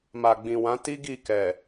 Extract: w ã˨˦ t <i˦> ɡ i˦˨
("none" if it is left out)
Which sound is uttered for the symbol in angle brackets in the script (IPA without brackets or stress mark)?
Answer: i˦